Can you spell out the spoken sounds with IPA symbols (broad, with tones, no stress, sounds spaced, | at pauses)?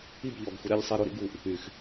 i˦˨ b ʎ ɔ˨ ɡ xʷ ɪ˦ ɾ e˦ ʎ sˤ ɛ˦ ɾ o˦ ɾ ḭ˦ ɡ u˨ ʔ | y˨ x